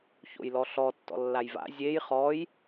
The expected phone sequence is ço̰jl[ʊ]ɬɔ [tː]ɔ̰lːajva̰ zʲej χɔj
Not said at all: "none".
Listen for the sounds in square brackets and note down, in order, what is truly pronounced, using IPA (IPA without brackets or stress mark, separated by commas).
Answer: ɔ, tː